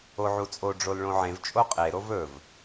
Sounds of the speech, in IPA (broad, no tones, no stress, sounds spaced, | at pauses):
o ʕ u t͡sʼ o ɖ͡ʐ o l ɭ õ ʕ ẽ v t͡ʃʼ o qʼ e ɾ o v ɵ v